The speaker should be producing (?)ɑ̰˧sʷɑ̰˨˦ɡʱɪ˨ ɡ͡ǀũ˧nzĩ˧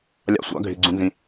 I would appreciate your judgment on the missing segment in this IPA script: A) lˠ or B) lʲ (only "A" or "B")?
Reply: B